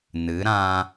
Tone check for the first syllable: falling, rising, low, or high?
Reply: rising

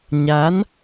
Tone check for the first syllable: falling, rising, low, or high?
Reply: rising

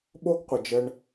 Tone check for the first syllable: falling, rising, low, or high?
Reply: high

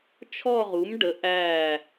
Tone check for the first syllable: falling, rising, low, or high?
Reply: falling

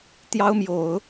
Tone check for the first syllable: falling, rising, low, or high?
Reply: high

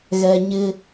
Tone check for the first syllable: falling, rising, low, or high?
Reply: high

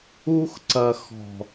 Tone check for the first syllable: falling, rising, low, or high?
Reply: high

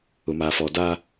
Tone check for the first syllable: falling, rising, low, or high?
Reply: low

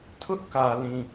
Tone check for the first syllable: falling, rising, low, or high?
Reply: high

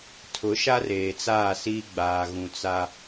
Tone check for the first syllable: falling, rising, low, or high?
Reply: rising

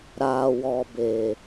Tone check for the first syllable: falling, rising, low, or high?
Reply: low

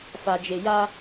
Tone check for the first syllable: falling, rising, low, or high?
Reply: low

